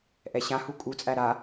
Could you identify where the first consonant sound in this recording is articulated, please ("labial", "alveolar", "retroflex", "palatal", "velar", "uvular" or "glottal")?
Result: glottal